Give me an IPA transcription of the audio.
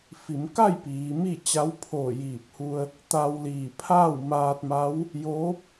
f i˩˧ m k a˥˨ j p iː˩˧ m i˥˨ t͡ɕ a˧˥ w pʰ oː˧˩ j iː˧˩ p̚ h u˧ ə̯ | t̪ a˧ w l iː˧˩ pʰ aː˥˨ w m aː˧ t̚ m a˧˥ w | j oː˧˥ p̚

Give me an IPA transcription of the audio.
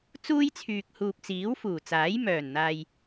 t͡s uː˥ j t͡sʰ yː˨ k̚ h uː˨ p̚ t͡s iː˨˥ w f uː˨˩ t͡s aː˨˥ j m œː˨˩ n n̪ aː˨ j

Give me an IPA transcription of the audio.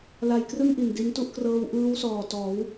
l a˧ j k r ɯ˥˩ ŋ ʔ i˨˩ n d i˦˥ n t u˥˩ ʔ k r ɤː˦˥ w ʔ ɯː˦˥ w s ɔː˨˩ t ɔː˩˦ w

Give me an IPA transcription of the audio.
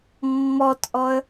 mː ɔ t ʔ ɔ ə̯

